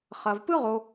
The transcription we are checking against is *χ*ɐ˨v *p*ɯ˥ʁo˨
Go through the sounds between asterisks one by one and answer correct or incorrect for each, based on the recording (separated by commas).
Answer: correct, correct